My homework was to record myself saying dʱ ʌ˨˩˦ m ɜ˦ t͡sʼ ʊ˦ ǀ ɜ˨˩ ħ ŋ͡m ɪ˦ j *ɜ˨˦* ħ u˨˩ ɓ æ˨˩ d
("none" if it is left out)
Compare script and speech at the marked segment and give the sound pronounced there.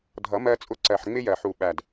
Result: ɜ˨˩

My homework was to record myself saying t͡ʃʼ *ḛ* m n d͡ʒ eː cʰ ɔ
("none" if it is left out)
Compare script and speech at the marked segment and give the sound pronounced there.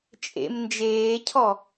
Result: ḛ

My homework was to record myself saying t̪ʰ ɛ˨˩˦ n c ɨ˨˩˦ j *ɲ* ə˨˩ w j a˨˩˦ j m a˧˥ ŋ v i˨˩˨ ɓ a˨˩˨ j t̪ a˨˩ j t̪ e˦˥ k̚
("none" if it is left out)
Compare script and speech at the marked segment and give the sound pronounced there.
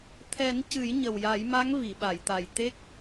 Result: ɲ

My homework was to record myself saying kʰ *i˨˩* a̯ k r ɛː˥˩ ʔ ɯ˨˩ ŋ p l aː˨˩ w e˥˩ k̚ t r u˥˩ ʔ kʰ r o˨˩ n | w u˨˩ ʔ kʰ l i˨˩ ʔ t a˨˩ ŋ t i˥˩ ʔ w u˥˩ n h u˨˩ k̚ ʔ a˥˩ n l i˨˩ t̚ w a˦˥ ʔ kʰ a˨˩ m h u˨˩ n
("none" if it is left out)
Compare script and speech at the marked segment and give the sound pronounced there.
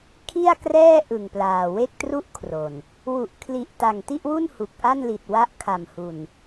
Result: i˥˩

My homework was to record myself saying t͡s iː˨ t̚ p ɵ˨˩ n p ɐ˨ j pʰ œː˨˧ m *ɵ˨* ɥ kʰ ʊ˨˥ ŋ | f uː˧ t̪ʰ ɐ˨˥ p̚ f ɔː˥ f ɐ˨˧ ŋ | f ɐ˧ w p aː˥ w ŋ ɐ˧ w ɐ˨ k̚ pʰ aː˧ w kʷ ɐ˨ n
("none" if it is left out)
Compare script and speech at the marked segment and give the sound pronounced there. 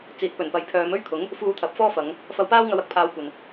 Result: ɵ˥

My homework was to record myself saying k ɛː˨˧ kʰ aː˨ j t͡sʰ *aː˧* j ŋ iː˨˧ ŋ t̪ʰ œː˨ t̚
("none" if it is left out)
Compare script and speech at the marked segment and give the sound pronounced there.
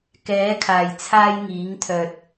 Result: aː˧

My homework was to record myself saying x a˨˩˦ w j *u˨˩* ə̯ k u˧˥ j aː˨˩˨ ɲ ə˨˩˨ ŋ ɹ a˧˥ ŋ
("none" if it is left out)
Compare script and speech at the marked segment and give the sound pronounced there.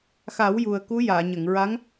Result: u˨˩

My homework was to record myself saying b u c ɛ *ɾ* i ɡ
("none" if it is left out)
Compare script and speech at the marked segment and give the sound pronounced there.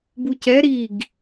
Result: ɾ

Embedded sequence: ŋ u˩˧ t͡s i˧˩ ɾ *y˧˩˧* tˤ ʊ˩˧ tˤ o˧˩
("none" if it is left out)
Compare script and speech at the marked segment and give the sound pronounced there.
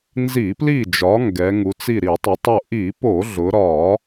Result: i˧˩˧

